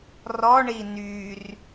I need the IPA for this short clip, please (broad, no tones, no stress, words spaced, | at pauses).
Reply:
rɔɳi nyr